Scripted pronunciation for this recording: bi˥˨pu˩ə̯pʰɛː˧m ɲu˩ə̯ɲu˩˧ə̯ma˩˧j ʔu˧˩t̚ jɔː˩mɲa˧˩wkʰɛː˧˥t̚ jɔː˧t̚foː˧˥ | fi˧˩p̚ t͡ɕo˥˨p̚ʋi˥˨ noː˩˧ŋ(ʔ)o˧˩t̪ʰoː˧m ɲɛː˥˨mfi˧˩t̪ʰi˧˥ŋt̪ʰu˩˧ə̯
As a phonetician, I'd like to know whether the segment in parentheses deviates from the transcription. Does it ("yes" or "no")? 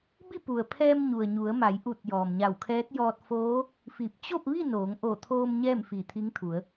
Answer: no